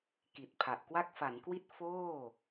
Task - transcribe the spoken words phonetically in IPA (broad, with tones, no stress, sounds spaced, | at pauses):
k i˨˩ t̚ pʰ a˨˩ ʔ k w a˥˩ k̚ f a˩˦ n k w i˦˥ t̚ f oː˥˩